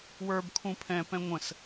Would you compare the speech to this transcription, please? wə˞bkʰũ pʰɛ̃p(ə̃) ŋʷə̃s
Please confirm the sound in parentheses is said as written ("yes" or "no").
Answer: no